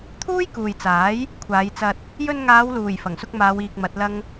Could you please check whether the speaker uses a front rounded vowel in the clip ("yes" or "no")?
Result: no